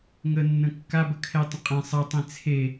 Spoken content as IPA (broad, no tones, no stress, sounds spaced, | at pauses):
ŋ ə nː ə̃ kː a b ə kʰ ɛ tˤ ə̃ qʼ ɛ̃ sˤ ə tˤ ẽ t͡sʰ e